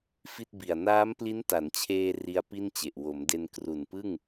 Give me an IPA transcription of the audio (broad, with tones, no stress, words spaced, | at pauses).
fi˥˩t̚bi˨˩a̯ naː˦˥mpli˦˥nta˩˦nt͡ɕʰeː˧ ri˦˥a̯pi˥˩nt͡ɕe˨˩ʔ wo˩˦mde˧n kru˨˩npɯ˥˩ŋ